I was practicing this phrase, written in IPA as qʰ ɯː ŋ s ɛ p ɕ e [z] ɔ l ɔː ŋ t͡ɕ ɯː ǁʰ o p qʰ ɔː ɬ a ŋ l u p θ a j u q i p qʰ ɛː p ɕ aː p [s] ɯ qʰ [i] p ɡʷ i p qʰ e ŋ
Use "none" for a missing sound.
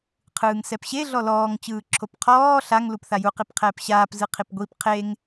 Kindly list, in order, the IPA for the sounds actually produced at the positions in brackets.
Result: ɮ, z, i

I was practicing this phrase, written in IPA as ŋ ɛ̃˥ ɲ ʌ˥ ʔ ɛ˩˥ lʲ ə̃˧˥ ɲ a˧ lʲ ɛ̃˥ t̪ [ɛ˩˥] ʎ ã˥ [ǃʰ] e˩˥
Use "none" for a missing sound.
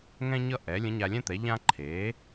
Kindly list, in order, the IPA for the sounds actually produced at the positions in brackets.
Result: ɛ˩˥, ǃʰ

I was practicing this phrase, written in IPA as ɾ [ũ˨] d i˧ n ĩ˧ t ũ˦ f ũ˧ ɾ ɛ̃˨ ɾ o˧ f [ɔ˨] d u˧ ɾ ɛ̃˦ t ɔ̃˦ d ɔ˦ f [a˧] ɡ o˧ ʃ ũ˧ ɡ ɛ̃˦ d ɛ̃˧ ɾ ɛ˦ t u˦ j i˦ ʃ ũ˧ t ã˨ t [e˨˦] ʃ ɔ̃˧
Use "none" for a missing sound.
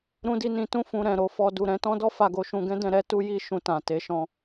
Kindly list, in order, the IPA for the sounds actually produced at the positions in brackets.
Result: ũ˧, ɔ˧, a˧, e˨˦

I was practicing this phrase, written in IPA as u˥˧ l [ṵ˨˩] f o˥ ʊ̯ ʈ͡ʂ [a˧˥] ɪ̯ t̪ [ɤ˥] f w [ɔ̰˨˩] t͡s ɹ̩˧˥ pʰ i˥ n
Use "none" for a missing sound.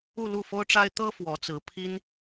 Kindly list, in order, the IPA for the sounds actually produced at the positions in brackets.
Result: u˥˩, a˥, ɤ˥, ɔ˧˥

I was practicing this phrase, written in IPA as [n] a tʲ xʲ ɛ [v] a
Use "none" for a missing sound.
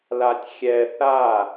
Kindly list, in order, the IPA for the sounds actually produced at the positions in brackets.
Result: l, θ

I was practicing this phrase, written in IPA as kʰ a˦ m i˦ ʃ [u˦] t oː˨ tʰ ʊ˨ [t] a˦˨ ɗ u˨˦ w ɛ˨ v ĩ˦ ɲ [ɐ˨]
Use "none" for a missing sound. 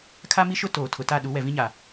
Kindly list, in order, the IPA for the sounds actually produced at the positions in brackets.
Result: ʊ˦, t, a˨

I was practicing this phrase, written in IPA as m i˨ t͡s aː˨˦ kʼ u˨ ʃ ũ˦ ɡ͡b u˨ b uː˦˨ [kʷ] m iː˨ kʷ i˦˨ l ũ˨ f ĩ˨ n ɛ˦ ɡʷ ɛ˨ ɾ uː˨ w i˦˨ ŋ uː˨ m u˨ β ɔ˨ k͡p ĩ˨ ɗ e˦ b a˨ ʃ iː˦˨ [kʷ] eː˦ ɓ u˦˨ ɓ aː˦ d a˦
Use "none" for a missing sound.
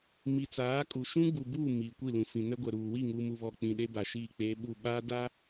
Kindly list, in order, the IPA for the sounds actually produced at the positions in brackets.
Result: none, k͡p

